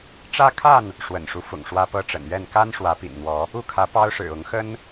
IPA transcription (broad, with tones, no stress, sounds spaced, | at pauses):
ʈ͡ʂ ä˦ kʰ a˥˨ n | ʂ w ə̰˨˩ n ʂ u˦ f ʊ̰˨˩ ŋ ʂ w ä˦ p ɤ˦ ʈ͡ʂ ə̰˨˩ n ɥ ɛ˥˨ n k a˦ n ʂ w ä˨˦ p ḭ˨˩ n n̪ w ɔ˨˦ | u˥˨ kʰ ä˨˦ p ɑ˦ ʊ̯ ʂ ɻ̩˨˩ ʊ˨˦ ŋ x ə˦ n